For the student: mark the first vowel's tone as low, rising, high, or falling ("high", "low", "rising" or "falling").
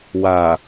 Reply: low